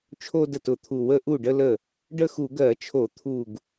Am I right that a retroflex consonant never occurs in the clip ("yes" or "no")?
no